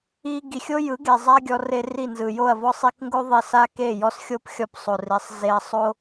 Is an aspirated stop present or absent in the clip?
absent